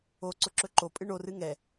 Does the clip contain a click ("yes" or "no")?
yes